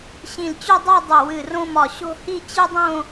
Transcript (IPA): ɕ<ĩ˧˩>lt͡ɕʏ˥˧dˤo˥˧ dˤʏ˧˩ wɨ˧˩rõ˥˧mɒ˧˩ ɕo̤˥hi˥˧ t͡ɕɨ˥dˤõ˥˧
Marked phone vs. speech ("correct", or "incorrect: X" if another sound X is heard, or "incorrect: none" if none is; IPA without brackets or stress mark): correct